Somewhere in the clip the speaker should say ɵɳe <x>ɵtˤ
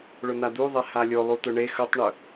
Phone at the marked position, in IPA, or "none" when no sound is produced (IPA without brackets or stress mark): x